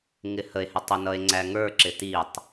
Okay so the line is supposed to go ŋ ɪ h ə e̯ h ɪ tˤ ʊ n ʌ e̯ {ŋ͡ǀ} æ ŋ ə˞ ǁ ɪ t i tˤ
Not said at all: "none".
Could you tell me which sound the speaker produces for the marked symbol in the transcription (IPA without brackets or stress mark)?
ŋ͡ǀ